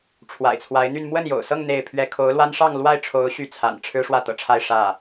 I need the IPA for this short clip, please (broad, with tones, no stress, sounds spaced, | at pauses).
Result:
ʈ͡ʂʰ w a̰˨˩ ɪ̯ t͡sʰ w a˧˥ ɪ̯ n̪ y˥˧ n m w ə˥˩ n j o̰˨˩ ʊ̯ s ɤ˥˧ ŋ n̪ e˥˩ ɪ̯ pʰ ɥ ɛ˥ kʰ o˧˥ ʊ̯ l w a˥ n ʂ ɑ˥˧ ŋ l w a˥˩ ɪ̯ ʈ͡ʂʰ o˧˥ ʊ̯ ɕ y˥˩ t͡sʰ a̰˨˩ n ʈ͡ʂʰ ɻ̩˥ ʂ w ä˥˩ t̪ ɤ̰˨˩ ʈ͡ʂʰ a˥˧ ɪ̯ ʂ ä˥˩